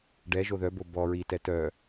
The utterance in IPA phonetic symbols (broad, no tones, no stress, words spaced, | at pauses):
ɖɛʒo ðœbo bɔ ɹitɛ tœ